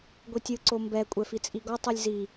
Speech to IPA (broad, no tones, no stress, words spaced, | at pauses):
ɡʷitʲɯ ǀombɛ kʷʼɛfit͡sʼiɡɔ tˤulʲzi